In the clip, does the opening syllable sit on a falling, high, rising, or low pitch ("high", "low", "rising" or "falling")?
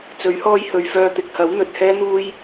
rising